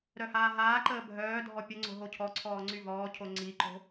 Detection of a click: present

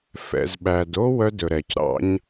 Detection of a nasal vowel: absent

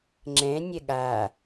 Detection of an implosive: present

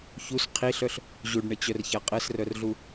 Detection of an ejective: present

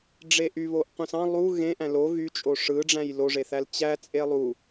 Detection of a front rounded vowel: present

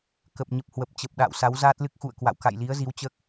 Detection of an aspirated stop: absent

